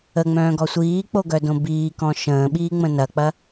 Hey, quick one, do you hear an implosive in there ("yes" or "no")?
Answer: yes